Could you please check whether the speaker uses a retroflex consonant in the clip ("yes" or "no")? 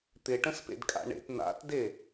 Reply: yes